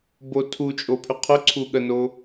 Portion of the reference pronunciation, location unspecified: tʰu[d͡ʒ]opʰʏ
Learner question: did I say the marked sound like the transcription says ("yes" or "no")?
no